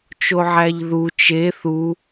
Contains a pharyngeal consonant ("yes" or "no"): yes